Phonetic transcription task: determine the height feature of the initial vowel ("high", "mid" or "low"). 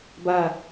low